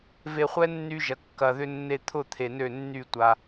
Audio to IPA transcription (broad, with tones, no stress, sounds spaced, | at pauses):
v e˧ χʷ ɛ˦ nː y˧ ʒ ɐ˨ kː ɐ˨ ð ʏ˧ nː e˧ t̪ʰ ʊ˦˨ t̪ʰ e˨ n ø˦˨ nː y˦˨ tʷ a˧